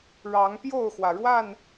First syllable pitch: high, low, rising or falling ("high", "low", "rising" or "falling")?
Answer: rising